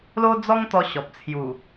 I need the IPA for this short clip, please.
l o˦ d͡z ɔ˦ ŋ t̪ ɔ˧ ɕ ɔ˨ p̚ t͡sʰ j u˨˩

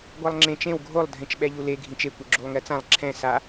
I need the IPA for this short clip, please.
ɡʷ a lˠ ŋ͡ǁ ẽ t͡ʃ ẽ w ɡʱ o lˠ dʱ ẽ t͡ʃ ɓ ɛ ʎ u l e ɡʱ ĩ t͡ʃ e kʷ e ɡ͡ǁ u lˠ ŋ ɛ t͡s ã lˠ ǁʰ ɛ̃ s a

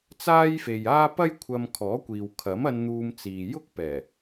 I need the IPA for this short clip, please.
t͡s aː˥ j f e˨ j aː˥ p ɐ˥ j kʷʰ ɐ˧ m kʰ ɔː˨˥ kʷ iː˨ w kʰ ɐ˨˥ m ɐ˧ n n̪ uː˧ m t͡s iː˨ j ʊ˥ k̚ p ɛː˨˩

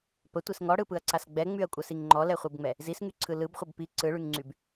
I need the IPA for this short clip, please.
p ə tʷ i s ŋ ɔ ɽ ɯ p ɯ ɐ̯ ǀ a s ɡ͡b ɛ ŋ͡m y ɐ̯ kʷʼ ə s i ŋ ŋ͡ǃ ɔ l ɛ χʷ ɯ b ŋ͡m ɛ | z i s ŋ y ǀʰ ɯ l ɯ b χʷ ə b p i ǀ ɯ ɭ y ŋ ŋ͡ǀ y b

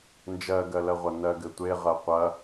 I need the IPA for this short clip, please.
n d͡ʒ ɜ ɡ ɜ l ɜ ʁʷ ɐ n ɜ ɡ ɘ tʷ e ʁ ɜ qʷ ɐ

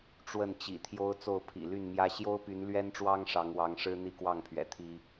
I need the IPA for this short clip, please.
ʈ͡ʂ w ə˥˨ n t͡ɕ ḭ˨˩ t̪ʰ j o˦ ʊ̯ t͡s o˥˨ ʊ̯ pʰ ḭ˨˩ l y˥˨ n m j ä˦ ɕ j o˦ ʊ̯ p y˨˦ n l ɥ ɛ˦ n ʈ͡ʂ w ɑ˦ ŋ ʂ ɑ˨˦ ŋ w ɑ˨˦ ŋ ʂ ɻ̩˦ n̪ i˥˨ k w ɑ˥˨ ŋ pʰ ɥ ɛ̰˨˩ t̪ʰ i˦

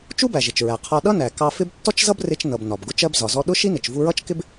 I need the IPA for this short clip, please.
t͡ʃ u˥ b æ˩ ʒ ɪ˩ t͡ʃ ɹ æ˩ qʰ ɒ˧ ɗ ʌ˥ n æ˩ k ɑ˧ f ɪ˥ b tː ɔ˥ t͡ʃ z ʌ˥ b r ɪ˧ t͡ʃ n ʌ˩ b n ɒ˩ b ɡ ʊ˧ t͡ʃ ɜ˧ b z ɒ˩ z ɔ˧ ɗ ʊ˥ ʃ i˥ n ɪ˩ t͡ʃ v u˧ ɹ ʌ˥ t͡ʃ k ɪ˥ b

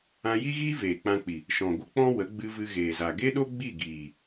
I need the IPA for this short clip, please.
ã˧ j i˦ ɣ iː˦ v eː˨ k͡p ã˧ k͡p i˨ | ʃ ɔ̃˨ ɡʷ ə˦ k͡p ɔ̃˦ w ə˨˦ ɡ͡b ɨ˧ v ɨ˧ ɣ eː˨ z a˨ ɡ e˦ ɗ o˦ ɡ͡b i˦˨ ɡ iː˨

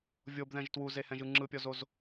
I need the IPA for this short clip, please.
vʲ o b ð ɛ̃ ʒ t w u z e h ɛ̃ ʒ ɯ ŋ͡ǁ ɯ pʲ ɔ z o z

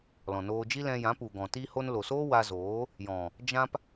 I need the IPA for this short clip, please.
l ɔ̃˨ n oː˧ d͡ʒ i˦ l ɛ̃˧ j ã˨˦ p u˨ ɡ ɔ̃˨ t i˧ h o˧ n l o˨ s o˦ w a˧ z oː˨˦ | j ɔ̃˨ | d͡ʒ ã˧ p

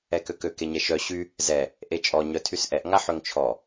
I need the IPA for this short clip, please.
ɛ k ø k ø k e ɲ ɛ ʃ œ ɕ y | z ɛ | ʔ e t͡ʃʼ ɔ ɲ œ tʰ y s ʔ ɛ ʔ ŋ a ħ ø ŋ t͡ʃʰ ɔ

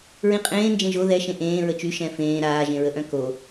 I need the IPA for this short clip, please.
ɹ ĩ qʼ ẽː n d͡ʒ ẽ ʒ o ð ɛ ʃ ẽ ʔ ẽː ɹ ə t͡ʃ y ʃ ɛ̃ f ẽː ɾ aː ʒ ẽ ɹ ə ʔ œ̃ k o

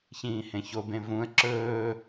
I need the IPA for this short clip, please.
ç ĩː h ẽ ç o b ẽ v ũ ə̯ ǁ ɵː

